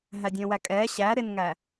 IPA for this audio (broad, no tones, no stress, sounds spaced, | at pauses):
ɦ æ dʲ ə̃ː w æ kʼ ɛː ɕ æ ɾ ɪ n ŋ æ